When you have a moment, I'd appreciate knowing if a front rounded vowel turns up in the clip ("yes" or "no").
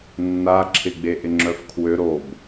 yes